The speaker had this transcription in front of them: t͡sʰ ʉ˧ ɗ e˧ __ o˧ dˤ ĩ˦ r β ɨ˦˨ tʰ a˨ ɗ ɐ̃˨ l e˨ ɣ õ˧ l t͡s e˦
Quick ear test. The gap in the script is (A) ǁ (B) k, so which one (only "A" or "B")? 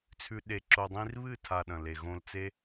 A